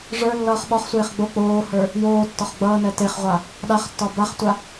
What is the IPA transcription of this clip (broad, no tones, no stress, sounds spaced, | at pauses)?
ʐ ə˞ lː ʌː χ ɓ ɒ χ sʷ eː χ ɡ͡b o k͡p oː h ə˞ | j oː tː ɒ χ ɡ͡b ʌː n ɛ t e χ ʁʷ a | ɗ a χ tː ɒ b a χ tʷ a